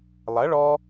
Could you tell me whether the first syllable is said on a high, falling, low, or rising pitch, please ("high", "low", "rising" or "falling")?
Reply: rising